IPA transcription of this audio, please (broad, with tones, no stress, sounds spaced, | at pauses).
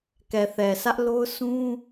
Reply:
k ɛ˨ θ ɛ˨ s ä˦ ʔ l o˦ ʊ̯ s ũ˦